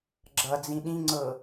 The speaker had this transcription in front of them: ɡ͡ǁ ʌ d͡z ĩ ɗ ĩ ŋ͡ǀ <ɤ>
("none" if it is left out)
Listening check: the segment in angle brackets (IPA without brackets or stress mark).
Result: ɤ